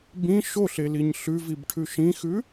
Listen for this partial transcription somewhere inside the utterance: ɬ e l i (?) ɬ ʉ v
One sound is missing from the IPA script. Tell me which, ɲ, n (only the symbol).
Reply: ɲ